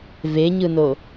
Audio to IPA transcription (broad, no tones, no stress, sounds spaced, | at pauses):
v e ɲ ɯ n o